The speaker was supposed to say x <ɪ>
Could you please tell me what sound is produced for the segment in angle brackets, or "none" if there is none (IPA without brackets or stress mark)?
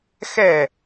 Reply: ɛ